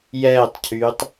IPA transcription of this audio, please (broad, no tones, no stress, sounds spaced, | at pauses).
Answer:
j ɛː tˤ cʰ yː tˤ